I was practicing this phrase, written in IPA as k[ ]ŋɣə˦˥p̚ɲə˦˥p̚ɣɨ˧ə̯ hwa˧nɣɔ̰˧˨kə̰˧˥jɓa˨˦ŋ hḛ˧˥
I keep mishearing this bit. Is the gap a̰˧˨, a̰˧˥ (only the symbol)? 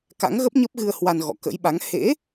a̰˧˥